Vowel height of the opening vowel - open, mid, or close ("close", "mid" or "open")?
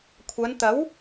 open